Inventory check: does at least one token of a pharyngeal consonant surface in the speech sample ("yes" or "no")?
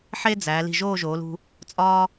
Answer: yes